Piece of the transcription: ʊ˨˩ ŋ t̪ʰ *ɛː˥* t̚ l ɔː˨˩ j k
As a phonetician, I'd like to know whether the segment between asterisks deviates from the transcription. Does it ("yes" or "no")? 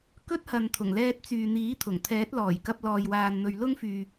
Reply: yes